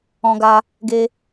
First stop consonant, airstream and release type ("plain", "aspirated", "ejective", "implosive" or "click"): plain